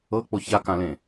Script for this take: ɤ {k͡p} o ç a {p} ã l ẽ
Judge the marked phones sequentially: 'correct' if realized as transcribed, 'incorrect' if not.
correct, incorrect: k

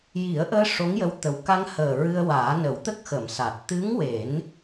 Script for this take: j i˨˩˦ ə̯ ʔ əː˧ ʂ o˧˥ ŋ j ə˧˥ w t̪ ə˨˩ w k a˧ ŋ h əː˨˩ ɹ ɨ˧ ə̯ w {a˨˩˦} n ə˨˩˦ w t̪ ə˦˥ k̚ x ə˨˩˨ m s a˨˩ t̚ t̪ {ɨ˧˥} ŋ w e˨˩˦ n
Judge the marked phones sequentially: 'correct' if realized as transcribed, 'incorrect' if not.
incorrect: aː˨˩˦, correct

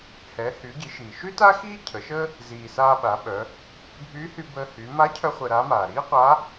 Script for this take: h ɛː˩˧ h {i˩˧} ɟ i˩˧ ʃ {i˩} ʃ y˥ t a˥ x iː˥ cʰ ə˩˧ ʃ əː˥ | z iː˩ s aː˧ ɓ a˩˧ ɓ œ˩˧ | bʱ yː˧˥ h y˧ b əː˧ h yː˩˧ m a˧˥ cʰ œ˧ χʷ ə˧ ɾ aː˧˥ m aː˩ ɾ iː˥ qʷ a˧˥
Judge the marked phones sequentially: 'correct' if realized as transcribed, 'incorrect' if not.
incorrect: y˩˧, incorrect: iː˩

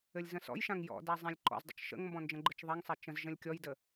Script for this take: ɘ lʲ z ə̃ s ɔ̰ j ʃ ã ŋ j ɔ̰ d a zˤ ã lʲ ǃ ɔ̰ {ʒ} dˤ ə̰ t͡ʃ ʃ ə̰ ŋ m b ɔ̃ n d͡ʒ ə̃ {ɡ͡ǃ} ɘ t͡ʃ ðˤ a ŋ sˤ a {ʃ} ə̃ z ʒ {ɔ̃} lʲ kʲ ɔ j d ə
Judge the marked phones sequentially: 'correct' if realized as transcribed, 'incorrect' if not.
incorrect: z, correct, incorrect: t͡ʃ, incorrect: ə̃

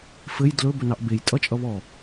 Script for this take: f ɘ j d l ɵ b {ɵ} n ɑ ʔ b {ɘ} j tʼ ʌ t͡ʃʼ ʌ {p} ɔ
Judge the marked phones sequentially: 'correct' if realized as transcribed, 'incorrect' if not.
correct, incorrect: e, incorrect: β

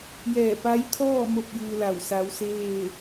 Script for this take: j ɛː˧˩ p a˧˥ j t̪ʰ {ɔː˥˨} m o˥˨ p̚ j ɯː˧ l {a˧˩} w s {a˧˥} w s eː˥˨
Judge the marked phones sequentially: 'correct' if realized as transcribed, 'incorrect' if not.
correct, correct, correct

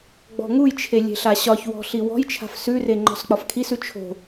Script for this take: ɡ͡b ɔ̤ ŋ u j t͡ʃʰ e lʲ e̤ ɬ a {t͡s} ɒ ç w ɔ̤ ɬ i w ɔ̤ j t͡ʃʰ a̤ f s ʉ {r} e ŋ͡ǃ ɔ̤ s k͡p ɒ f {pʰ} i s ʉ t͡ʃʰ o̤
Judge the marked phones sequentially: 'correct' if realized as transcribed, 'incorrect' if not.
incorrect: ɕ, correct, incorrect: kʰ

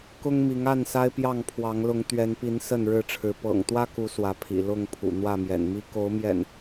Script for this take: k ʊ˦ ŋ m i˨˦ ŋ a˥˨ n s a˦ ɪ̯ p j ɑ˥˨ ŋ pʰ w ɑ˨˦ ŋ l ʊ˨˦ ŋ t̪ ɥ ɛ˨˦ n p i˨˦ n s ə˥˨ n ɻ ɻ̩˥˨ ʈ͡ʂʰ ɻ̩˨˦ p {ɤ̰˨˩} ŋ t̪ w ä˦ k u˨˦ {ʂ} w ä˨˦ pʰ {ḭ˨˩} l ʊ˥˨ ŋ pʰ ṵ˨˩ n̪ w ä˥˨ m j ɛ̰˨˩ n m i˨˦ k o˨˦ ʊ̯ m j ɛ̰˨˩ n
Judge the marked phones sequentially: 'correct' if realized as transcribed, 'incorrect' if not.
correct, incorrect: s, correct

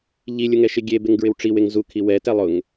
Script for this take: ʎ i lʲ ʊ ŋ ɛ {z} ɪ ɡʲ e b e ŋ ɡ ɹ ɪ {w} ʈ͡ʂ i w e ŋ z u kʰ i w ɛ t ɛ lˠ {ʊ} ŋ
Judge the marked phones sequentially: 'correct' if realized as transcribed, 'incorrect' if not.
incorrect: ʃ, correct, correct

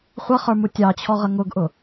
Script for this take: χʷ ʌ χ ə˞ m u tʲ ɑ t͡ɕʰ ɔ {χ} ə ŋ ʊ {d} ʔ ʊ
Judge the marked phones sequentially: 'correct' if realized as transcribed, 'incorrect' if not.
incorrect: ʁ, incorrect: ɡ

